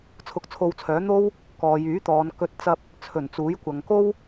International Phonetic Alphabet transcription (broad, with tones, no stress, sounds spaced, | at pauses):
t͡sʰ ʊ˧ k̚ t͡sʰ o˧ w t͡sʰ œː˨˥ n̪ o˥ w | k ɔː˨ j yː˨˥ t̪ ɔː˨˧ n k ɵ˧ t̚ t͡s ɐ˧ p̚ | t͡sʰ ɵ˨˩ n t͡s uː˨˥ j kʷ ɐ˨ ŋ k o˥ w